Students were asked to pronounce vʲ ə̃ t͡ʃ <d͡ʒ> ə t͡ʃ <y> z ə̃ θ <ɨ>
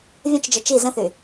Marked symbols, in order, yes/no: yes, no, no

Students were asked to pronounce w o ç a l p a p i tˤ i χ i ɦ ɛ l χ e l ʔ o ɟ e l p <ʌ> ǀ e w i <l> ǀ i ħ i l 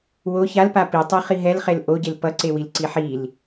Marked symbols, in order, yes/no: yes, yes

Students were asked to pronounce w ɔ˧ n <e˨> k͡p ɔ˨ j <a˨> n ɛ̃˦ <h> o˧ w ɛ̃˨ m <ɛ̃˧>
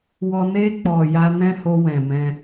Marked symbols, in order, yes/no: no, no, yes, yes

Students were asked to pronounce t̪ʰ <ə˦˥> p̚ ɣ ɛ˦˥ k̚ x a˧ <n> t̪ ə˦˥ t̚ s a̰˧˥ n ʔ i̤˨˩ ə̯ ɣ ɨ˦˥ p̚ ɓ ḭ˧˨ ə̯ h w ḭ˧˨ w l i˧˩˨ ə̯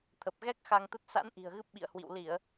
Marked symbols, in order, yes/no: no, no

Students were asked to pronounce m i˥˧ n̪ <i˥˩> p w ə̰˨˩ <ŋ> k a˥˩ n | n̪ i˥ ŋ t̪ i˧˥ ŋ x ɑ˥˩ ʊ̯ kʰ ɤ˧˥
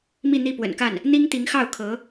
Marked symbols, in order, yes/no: yes, no

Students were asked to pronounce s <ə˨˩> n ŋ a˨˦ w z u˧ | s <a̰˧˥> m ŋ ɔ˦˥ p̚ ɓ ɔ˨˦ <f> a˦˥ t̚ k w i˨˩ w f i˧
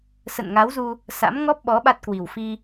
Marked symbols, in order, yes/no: no, yes, no

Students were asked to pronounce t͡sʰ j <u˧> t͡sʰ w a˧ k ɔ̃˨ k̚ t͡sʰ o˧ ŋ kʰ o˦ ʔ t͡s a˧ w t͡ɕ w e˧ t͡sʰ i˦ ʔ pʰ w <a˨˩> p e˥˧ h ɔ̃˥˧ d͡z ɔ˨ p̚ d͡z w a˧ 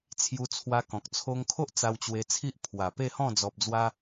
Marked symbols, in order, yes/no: yes, yes

